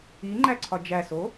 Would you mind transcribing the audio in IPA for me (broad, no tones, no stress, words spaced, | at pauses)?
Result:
iŋ͡ǃæǀʰɒ d͡ʒæso